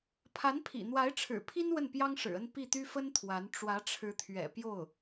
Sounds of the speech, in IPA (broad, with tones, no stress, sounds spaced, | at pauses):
pʰ a˧˥ n pʰ ḭ˨˩ n̪ w a˧˥ ɪ̯ ʈ͡ʂʰ ɻ̩˨˩ pʰ i˥ n w ə˥˩ n p j ɑ˥ ŋ ʂ ɻ̩˨˩ ə˥˧ n p i˥˩ t̪ y˥ f ə˥ n t̪ʰ w a˧˥ n ʈ͡ʂ w ä˧˥ ʈ͡ʂʰ ɻ̩˧˥ t̪ʰ ɥ ɛ̰˨˩ p j o˥˩ ʊ̯